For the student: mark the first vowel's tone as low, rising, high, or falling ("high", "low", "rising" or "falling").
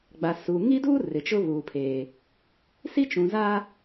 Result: low